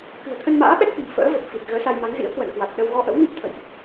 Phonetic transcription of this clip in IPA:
kɨ̤˨˩ə̯t̪ʰə˧n ma̰ː˧˥ɓɛ˦˥k̚fi̤˨˩m fə̰ː˧˥və˨˩p̚ fi˨˩t̚ɣəː˨˦sa˧jma˨˦ŋ zḭ˧˥ə̯kwə̰˧˨nkwa˨˩t̚ɗə˧w ɣɔ˧ʔə̰˧˥wmi˦˥p̚ t̪ʰə̰˧˨jʔ

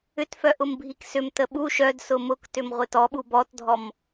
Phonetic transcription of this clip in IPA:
ʏtfœʔʊm bʱiksʏm təɓu ʃœdsʊ mʊktʏm ʁʷɪtɔ ɓubɔtdʱɔm

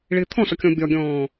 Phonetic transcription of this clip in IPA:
ɭɪːt̪ʰɔ̃sɒkʲɔ̃ bʲɒɡʲɔ̃ː

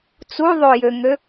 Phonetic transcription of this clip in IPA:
t͡suðˤojøŋø

